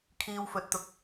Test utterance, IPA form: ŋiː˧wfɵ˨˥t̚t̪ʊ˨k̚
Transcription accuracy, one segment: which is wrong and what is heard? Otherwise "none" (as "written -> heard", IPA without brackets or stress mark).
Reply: ŋ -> kʰ